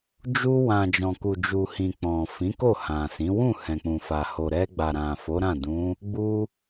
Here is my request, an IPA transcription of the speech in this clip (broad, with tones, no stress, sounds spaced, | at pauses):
d͡ʒ u˧ w ã˨ d͡ʒ ɔ̃˨ k u˨ d͡ʒ u˨ h ĩ˨ k͡p ɔ̃˨ f ĩ˨˦ k o˦˨ h ã˨ s ĩ˨˦ w ũ˦˨ h ɛ̃˨ k͡p ũ˨ f a˨ h o˨ ɾ ɛ˧ ɡ͡b a˨ ɾ ã˨ f o˨˦ ɾ ã˦˨ d ũ˨˦ | ɡ͡b u˦